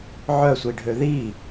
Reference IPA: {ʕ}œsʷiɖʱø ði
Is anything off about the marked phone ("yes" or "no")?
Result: no